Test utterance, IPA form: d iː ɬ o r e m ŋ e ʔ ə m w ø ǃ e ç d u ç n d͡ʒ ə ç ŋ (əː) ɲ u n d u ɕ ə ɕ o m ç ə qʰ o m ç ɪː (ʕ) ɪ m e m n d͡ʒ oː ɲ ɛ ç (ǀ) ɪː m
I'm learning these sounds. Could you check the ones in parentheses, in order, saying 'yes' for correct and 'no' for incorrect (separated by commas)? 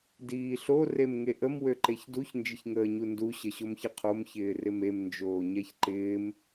yes, no, no